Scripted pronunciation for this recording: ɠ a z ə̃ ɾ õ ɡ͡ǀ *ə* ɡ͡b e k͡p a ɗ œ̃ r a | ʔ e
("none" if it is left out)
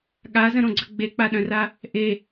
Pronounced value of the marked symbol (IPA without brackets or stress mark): ə